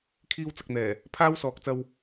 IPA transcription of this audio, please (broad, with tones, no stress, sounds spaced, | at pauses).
kʰ iː˥ w t͡s ɐ˧ k̚ n̪ ɛː˨˩ | pʰ aː˥ w s ɔː˨˥ k̚ t͡s ɐ˧ w